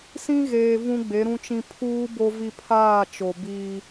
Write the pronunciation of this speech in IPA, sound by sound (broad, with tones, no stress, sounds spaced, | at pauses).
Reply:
s ĩ˦ ɣ eː˨ v ũ˦ ɡ͡b e˨˦ ɾ ũ˦ t͡ʃ ĩ˦ pʰ uː˦ b o˦ v i˦ pʰ aː˦˨ t͡ʃ o˨ b iː˦